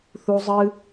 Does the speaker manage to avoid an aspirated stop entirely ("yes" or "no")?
yes